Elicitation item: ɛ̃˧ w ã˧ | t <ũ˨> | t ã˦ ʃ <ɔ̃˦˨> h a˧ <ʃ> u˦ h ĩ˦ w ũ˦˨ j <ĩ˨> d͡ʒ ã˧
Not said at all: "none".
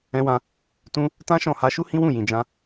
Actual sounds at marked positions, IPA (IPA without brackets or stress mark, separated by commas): ũ˦, ɔ̃˦˨, ʃ, ĩ˨